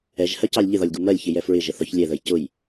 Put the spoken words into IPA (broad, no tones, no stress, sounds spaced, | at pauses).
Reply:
ɛ ʒ h ɜ c ɑ lʲ ʎ ɪ ð ɒ lʲ ɡ u m ɜ lʲ ç ɪ j ɛ f ɹ ɪ ʒ ə θ ɒ ç lʲ ɛ ð ə j c ʊ j